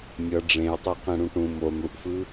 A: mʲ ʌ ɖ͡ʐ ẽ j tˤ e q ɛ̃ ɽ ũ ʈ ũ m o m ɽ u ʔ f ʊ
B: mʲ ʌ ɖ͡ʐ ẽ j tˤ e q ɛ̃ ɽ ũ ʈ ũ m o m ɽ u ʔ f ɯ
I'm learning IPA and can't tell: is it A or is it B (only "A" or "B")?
B